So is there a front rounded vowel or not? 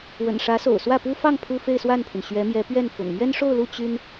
yes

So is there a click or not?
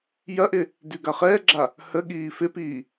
yes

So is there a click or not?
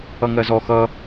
no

